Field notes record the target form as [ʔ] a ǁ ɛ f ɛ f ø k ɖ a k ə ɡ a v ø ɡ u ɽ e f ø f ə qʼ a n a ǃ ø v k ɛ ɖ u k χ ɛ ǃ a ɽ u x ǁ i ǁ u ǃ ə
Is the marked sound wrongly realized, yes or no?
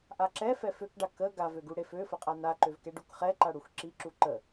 no